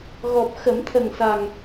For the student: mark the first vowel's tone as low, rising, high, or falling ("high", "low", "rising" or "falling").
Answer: low